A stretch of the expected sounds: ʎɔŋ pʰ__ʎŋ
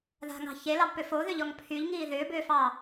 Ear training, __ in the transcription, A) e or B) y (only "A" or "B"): B